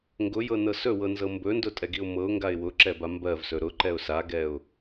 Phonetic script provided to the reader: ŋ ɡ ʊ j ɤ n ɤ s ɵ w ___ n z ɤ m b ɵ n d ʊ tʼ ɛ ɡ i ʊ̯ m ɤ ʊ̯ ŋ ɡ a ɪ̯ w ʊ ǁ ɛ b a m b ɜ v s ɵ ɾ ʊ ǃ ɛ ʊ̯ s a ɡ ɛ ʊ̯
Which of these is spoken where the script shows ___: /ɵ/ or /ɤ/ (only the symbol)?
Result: ɤ